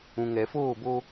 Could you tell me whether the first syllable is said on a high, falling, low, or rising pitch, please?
low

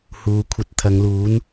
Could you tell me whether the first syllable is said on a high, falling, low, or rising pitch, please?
low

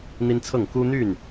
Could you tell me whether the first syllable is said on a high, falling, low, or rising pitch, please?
high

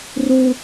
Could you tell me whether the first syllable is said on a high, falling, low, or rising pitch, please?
high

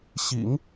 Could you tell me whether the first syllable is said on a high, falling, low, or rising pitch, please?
low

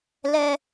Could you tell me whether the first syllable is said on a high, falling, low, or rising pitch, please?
low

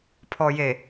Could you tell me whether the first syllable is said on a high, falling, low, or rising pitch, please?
low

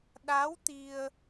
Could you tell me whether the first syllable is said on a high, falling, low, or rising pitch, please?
rising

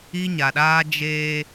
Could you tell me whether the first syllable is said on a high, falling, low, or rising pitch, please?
high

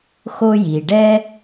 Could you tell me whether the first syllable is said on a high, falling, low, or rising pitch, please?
high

